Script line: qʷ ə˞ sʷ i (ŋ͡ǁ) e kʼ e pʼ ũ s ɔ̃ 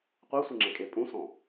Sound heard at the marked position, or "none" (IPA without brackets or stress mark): ŋ͡ǁ